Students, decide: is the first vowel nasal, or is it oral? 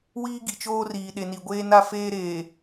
oral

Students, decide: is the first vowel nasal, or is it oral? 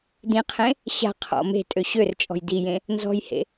nasal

